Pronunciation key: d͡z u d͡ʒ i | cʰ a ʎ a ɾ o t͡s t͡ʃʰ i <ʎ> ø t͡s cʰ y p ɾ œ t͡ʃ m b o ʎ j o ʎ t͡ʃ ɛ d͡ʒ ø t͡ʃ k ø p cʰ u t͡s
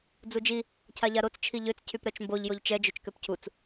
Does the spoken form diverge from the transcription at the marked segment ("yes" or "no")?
no